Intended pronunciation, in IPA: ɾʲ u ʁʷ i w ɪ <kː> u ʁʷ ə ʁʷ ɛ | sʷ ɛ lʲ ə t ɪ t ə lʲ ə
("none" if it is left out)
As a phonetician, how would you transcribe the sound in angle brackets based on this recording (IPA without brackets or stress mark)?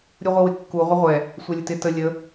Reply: kː